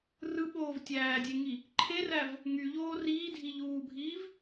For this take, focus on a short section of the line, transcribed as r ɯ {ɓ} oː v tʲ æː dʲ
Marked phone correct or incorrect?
correct